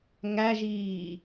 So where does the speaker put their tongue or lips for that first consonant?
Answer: velum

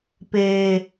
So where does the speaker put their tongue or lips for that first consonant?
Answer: lips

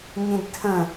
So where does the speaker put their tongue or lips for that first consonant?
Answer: palate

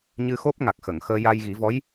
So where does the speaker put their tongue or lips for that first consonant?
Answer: palate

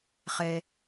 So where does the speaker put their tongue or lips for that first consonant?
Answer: uvula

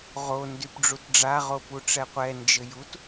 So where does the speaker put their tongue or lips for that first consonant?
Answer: uvula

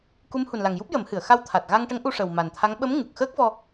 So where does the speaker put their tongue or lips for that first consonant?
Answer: velum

